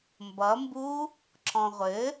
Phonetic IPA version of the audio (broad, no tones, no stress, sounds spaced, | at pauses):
m b ʌ m b u | ǁ ɔ̃ ʁʷ ɘ